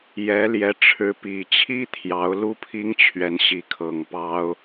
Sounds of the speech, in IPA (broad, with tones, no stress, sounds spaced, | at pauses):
j ɛ˨˦ l j ɛ˨˦ ʈ͡ʂʰ ɻ̩˨˦ p i˨˩ t͡ɕʰ i˦ t̪ʰ j ɑ˨˦ ʊ̯ l u˦ pʰ i˦ ŋ t͡ɕʰ ɥ ɛ˨˦ n ɕ i˨˦ kʰ ɤ˨˩ ŋ p ɑ˦ ʊ̯